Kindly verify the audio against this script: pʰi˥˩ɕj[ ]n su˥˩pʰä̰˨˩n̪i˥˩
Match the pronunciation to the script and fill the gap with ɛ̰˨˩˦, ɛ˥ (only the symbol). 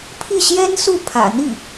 ɛ˥